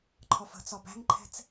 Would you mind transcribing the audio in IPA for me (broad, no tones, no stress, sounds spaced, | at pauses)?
ǃʰ ɒ f ə̤ t͡s ɒ b æ̤ ŋ ǃʰ ɛ̤ t͡s